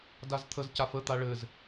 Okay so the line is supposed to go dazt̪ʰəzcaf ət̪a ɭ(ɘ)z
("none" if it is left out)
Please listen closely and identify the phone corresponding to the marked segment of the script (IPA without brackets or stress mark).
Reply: ɘ